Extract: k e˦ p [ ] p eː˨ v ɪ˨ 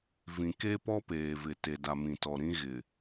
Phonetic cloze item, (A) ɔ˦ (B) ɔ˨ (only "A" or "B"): A